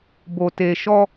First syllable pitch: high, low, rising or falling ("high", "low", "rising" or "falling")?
low